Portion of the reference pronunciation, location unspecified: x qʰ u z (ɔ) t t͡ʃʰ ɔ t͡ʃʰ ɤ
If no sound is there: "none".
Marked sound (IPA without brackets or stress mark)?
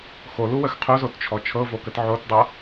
o